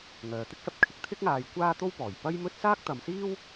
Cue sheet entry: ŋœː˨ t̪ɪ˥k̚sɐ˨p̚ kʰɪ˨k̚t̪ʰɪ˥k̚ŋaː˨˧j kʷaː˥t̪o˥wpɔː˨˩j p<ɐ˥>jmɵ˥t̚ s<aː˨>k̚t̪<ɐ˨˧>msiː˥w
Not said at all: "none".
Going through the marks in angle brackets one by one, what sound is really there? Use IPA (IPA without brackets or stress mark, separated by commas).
ɐ˥, aː˥, ɐ˨˧